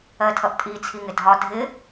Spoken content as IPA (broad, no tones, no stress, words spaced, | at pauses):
ɜtʰʌʔtʼi t͡sʰiŋɪdʱɒ dʱɪ